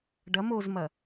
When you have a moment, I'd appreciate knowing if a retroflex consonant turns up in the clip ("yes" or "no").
yes